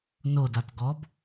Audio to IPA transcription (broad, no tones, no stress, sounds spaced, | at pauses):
n o d a t ɡ ɔ b